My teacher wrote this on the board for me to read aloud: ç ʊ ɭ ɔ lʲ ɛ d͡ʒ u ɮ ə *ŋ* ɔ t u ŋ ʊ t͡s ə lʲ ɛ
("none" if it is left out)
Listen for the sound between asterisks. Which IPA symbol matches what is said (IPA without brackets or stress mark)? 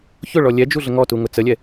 ŋ